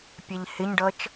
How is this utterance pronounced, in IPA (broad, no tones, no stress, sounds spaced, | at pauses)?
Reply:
pʲ ɛ ʎ h ɪ ɲ ɖ ʌ t͡ʃ